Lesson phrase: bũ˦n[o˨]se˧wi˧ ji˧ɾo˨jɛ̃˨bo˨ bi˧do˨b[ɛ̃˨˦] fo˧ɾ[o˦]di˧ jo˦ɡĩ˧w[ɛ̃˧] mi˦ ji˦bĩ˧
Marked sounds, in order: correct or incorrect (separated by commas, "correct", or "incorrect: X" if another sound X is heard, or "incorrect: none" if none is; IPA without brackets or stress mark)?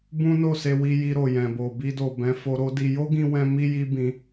incorrect: o˦˨, correct, correct, correct